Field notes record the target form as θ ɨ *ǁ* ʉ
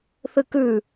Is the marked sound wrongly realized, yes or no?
yes